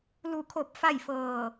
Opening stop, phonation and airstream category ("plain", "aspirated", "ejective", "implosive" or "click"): aspirated